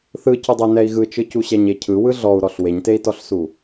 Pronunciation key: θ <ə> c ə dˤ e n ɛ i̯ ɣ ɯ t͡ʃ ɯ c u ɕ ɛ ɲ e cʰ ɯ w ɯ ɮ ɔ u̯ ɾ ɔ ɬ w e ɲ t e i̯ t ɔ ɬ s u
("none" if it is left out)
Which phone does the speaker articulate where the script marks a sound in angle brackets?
ɯ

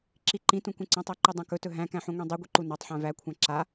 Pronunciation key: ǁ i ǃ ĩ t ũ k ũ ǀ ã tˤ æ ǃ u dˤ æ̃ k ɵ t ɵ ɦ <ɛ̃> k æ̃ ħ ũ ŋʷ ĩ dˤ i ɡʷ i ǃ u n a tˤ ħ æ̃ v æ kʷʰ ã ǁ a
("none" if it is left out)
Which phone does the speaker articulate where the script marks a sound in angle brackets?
æ̃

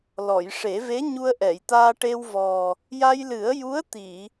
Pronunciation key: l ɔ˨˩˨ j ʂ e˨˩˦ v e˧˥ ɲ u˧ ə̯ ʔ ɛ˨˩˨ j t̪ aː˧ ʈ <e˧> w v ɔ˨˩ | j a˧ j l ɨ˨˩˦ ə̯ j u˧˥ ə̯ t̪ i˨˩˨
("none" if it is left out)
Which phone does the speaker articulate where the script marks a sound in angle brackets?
e˧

